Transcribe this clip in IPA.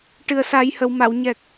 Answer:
ʈ ɨ˨˩ ə̯ s a˨˩˦ j h ə˨˩˨ w m a˨˩˨ w ɲ ɛ˨˩ k̚

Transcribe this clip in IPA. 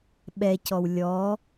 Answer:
ɓ ɛ c ɔ w lʲ ɔ

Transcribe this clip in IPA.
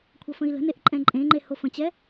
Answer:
kʷʰ ʌ f ə̃ i̯ l ə̤ n e ʔ ǃʼ ɛ̃ ǃʼ ẽ ŋ͡ǃ e h o f ə̃ t͡ɕ ɛ

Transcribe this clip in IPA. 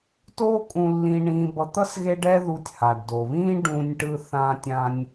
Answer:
t oː˦ kʼ ũ˧ lː ĩ˧ ɳ ĩː˧ b ʌ˧ t̪ ʌ˦ s ɣ e˦ ɖ ɛ˦ ð u˧ tʲ h a˨ ɖ d o˨ β ĩː˦ ɖ ũː˧ nʲ ʈ ɯ˧ θ ãː˧ tʲ ã˧ nʲ

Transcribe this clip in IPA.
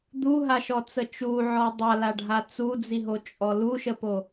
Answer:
d̪ u ɦ a ʃ ɔ t͡s ə t͡ʃ u ʕ ɔ dˤ a l a ɖʱ a t͡s u d͡z i ɦ o t͡ʃʼ ɔ l u ʃ ə p o

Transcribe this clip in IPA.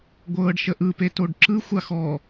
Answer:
ɡʷ ɤː ɖ ʃ ə ʔ ɯ p e t o ɖ ǁ ɯ xʷ a x ɔ

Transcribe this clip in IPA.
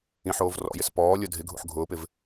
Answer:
ĩ ħ oː v r ɔ̰ j ɪ s p ɔː lʲ ʊ dʱ ɪ ɡʱ ṵ ħ ɡʱ ʊː p ɪ v

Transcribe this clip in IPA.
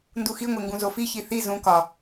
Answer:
n d u x i ŋʷ e ŋ ɡ ũ z o f i ç i θ i z ũ k ɒ

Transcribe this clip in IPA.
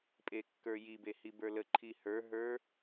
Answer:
pʼ e kː ə˞ j i b e h i b ə˞ l ə ǃʰ i h ə˞ ɦ ə˞

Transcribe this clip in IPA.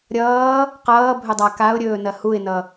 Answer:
ɾʲ ʌː | q ʌː bʱ ɵ dˤ a k a ʊ̯ ɾʲ ɵː n ɐ h u ɪ̯ n ʌ

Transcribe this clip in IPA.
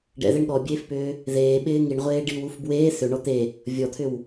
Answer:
ɖ ɛ̰ ð e ɳ ɠ ɔ bʲ eː f p ʏː | ð eː ɓ ɪː ŋ i ɳ ʁʷ eː ɖ i w u f b w eː θ ʏ ɳ ɔ t̪ e | vʲ ɔ t̪ʰ ʏ w

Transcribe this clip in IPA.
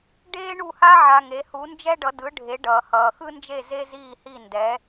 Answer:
ɖ eː˥ ɳ u˥˩ h a˥ ʕ a˧ ŋ e˩˥ h u˩˥ n d͡ʒ ɛ˥ ɖ ʌ˩˥ d ɯ˩˥ ɖʱ e˩˥ ɖ ʌː˩ h ʌː˩ x ɯ˥ n d͡ʒ e˥˩ z e˥ z iː˥˩ h i˥˩ n d ɛ˩˥

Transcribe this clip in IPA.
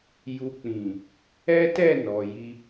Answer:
j u˨ k͡p ĩ˨ | ɛ˦ t ɛ˦˨ n ɔ˨ j i˧

